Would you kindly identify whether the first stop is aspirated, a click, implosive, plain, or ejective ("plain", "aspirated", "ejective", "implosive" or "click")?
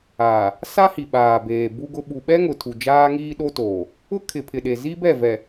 implosive